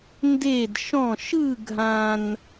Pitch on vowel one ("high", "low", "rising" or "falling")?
falling